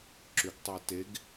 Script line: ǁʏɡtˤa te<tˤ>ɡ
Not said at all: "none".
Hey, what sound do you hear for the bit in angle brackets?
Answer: none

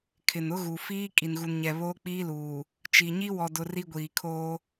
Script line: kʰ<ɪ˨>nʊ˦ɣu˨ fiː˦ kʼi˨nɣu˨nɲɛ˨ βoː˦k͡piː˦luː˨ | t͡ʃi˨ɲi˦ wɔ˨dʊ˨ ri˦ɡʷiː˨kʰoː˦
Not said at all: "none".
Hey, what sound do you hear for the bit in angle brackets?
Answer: ɪ˨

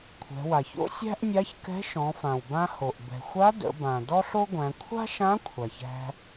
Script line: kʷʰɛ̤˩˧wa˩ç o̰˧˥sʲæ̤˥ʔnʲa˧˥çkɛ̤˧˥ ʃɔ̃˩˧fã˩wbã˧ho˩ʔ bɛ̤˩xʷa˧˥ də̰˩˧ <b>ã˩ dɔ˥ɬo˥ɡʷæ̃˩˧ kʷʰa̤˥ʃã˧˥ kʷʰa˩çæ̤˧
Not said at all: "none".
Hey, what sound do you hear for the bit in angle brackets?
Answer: b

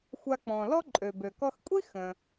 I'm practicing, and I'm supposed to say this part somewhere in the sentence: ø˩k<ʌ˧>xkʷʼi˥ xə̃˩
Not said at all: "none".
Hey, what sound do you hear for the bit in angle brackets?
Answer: ɔ˧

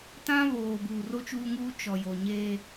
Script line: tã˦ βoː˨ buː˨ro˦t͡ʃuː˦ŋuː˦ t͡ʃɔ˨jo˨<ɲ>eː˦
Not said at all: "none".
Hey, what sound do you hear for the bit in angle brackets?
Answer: ɲ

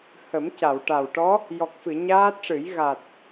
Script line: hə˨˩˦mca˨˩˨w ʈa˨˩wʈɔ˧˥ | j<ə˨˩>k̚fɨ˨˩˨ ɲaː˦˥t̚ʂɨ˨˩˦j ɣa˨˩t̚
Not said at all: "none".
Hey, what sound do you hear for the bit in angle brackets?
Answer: ɔ˨˩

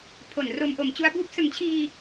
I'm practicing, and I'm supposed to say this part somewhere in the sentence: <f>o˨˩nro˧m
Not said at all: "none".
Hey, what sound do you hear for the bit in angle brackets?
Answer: pʰ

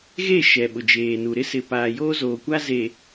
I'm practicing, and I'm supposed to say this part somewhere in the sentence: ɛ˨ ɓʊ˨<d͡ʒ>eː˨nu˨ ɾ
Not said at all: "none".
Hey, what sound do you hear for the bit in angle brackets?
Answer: d͡ʒ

